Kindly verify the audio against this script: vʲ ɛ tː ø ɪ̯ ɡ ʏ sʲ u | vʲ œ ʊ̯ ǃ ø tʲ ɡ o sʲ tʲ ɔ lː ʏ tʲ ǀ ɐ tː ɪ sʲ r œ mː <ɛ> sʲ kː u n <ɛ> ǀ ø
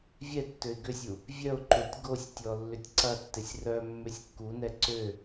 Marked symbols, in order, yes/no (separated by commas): no, yes